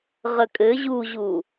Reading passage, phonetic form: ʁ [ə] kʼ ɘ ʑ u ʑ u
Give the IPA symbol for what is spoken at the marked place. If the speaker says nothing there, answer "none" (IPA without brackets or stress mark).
ə